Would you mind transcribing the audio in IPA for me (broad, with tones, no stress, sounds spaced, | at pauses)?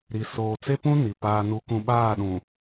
ɾ i˨ s oː˨ t͡s e˦ p ũ˦ n i˨ p aː˦ n u˦ k ũ˦ ɓ aː˦˨ ɗ ũ˨